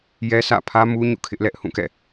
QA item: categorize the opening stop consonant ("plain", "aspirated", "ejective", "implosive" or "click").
aspirated